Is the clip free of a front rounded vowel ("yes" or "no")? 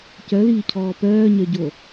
no